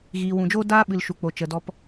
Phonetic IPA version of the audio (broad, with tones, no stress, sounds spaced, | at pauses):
ɣ iː˨ w ũ˨ d͡ʒ oː˦ d aː˧ ɓ ɨ˨ l ʃ u˨ k͡p o˨ t͡ʃ ə˨ d ɔ˧ p